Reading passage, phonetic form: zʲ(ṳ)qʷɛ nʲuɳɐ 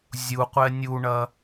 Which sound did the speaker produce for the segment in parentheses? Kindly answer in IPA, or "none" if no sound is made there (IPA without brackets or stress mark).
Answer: u